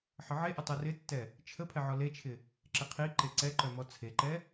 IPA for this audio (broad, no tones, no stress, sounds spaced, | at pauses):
ħ ə ʕ e ʔ ɵ tˤ ɐ r ɪ tː ɛ | t͡ʃʰ ə pʰ ɛ ʕ ɔ l e t͡ʃʰ ɪ | ǁ ɪ qʰ i ǃ e ǀ ɛ ǃ œ m ɔ t͡sʰ e ǃ ɛ